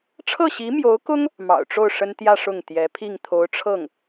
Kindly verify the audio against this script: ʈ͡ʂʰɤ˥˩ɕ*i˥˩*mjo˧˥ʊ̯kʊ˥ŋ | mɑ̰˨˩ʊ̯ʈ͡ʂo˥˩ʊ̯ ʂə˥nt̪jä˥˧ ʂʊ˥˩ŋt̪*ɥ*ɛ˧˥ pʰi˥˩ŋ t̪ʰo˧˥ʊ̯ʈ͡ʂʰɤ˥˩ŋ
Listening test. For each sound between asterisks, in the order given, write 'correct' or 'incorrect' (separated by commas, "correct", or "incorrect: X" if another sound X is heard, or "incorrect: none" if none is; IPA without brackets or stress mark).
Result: incorrect: i˧˥, incorrect: j